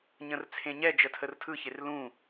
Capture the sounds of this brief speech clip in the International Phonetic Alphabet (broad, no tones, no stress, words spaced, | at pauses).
ɲə̃rt͡sʰẽɲɛ d͡ʒətʰərtʰɯ çerlũ